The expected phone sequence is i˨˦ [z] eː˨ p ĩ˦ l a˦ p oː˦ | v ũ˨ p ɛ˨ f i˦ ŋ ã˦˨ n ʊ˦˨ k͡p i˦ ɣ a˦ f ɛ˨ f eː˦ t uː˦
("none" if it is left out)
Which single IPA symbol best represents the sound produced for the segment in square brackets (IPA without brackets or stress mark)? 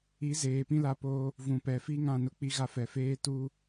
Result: z